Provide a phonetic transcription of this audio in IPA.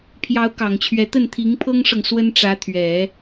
pʰ j ɑ˧˥ ʊ̯ k ɑ˨˩ ŋ t͡ɕʰ ɥ ɛ˧˥ t̪ ə˥˩ n t̪ʰ i˧˥ ŋ pʰ ɤ˥ ŋ ʂ ɤ˨ ŋ s w ə˥ n ʈ͡ʂ ä˧˥ t̪ʰ ɥ ɛ˨˩˦

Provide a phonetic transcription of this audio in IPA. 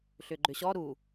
ɬ ʏ ɡ͡ǃ ʏ ɕ ɔ ɾ u

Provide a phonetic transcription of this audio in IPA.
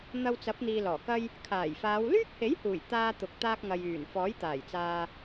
n̪ ɐ˧ w t͡s ɐ˨˥ p̚ n̪ iː˨ l ɔː˨˩ k ɐ˥ j | kʰ aː˨˩ j f aː˨˧ w l yː˥ k̚ h e˨˥ j h uː˨˩ j t̪ aː˧ t̪ ʊ˨ k̚ t̪ aː˧ k̚ ŋ ɐ˨ j yː˨˩ n f ɔː˨˥ j t̪ aː˨˩ j t͡s aː˨

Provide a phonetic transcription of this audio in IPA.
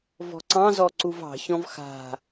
v ɔ̤ ǀ ɑ̃ z ɔ ǀ u v ɑ̤ ç ɔ̃ v x a̤

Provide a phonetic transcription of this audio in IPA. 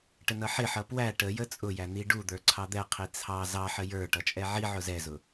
ʈ ə n ʌ ħ ɪ ħ ʌ p w æ ʈ ə j ə t͡sʼ ʊ j æ n̪ i ɖ u d̪ ə˞ ǀʰ ɑ d̪ ɛ qʰ i t͡sʰ ɑ z ɑ ħ ə j ə˞ ʈ ʌ t͡ʃʼ ɛ ʕ i ʕ ʊ z ɛ z ʊ

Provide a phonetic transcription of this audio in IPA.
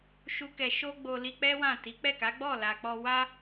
ʃ u˦ k ɛ˧ ʃ o˦ ɡ͡b o˧ l i˧ k͡p ɛ˦ w ã˦˨ t i˨˦ k͡p ɛ˦˨ k a˨˦ ɡ͡b ɔ˦˨ l a˨ k͡p ɔ˧ w a˦

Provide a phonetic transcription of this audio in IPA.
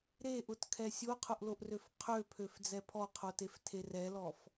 ɾ e ʔ ʊ t kʰ ɛ sʲ o qʰ ʊ ʔ l o ʔ r ø f qʰ ø pʰ ø f d͡z ɛ pʰ ɔ qʰ o t e f tʰ e r ɛ l ɔ f

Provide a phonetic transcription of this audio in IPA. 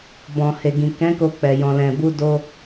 b ɔ̃˨ h e˨ ɡ ĩ˨ k ɛ̃˨˦ k o˧ k͡p ɛ˨ j ɔ̃˨ l ɛ̃˨ b u˧ d o˧

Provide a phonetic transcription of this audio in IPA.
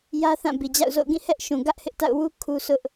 j ä˦ θ ã˦˨ b i˨ d͡ʑ a̰˦˨ ʊ̯ z o̰˦˨ ʊ̯ ɡ ĩ˦˨ h ɛ˦ ʔ ʃ ũ˨ ɡ ä˦ ʔ h ɪ˦ ʔ t a̰˦˨ ʊ̯ w u˦ kʰ u˦ sʰ ʊ˦ ʔ

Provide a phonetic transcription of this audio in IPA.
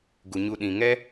ɡ u˨ ɲ u˧ ɗ ĩ˨ ŋ ɛ˦

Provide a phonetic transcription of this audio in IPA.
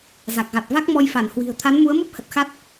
z a˨˩ k̚ ɣ a˨˩ t̚ v a˦˥ k̚ m ɔ˧ j f a˧˩ n h w i̤˨˩ ə̯ t̪ʰ a˨˦ n m u˨˦ ə̯ m u˦˥ p̚ h ə˨˩ t̚ x a˦˥ t̚

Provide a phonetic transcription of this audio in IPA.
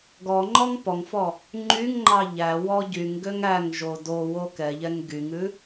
ɡ ɔ ŋ͡ǃ ɔ ŋ p ɔ ŋ f ɔ | ŋ͡ǃ y ŋ ŋ͡ǃ ɑ ʎ æ w ɔ ɟ y ŋ ɡ ø ŋ æ ŋ ʒ o d o w o k ɛ ʎ ɛ ŋ ɡ y ŋ ʉ

